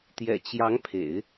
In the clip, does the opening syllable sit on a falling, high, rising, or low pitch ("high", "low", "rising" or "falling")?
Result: low